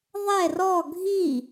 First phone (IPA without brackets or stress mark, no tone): ðˤ